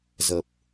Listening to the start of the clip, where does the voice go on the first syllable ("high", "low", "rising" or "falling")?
low